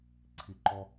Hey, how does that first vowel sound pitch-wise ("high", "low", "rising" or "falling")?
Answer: low